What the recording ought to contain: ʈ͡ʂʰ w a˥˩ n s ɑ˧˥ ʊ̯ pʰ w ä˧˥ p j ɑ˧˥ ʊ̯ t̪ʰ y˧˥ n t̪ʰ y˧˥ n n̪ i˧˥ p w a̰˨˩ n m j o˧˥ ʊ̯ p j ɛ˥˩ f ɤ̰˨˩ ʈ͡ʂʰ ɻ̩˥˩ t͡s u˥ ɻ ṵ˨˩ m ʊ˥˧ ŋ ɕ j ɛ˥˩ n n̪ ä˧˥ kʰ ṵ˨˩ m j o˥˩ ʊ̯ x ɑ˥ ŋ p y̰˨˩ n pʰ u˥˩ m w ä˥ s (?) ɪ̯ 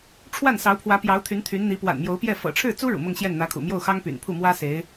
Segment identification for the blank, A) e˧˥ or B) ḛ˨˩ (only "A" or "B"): A